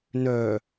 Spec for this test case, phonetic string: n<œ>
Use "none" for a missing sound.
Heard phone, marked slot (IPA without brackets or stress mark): œ